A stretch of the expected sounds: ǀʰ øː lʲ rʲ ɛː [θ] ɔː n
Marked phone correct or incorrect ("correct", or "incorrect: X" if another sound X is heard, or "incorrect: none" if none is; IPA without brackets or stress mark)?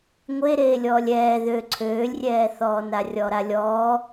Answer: correct